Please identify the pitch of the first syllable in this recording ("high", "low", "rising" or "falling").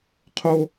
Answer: high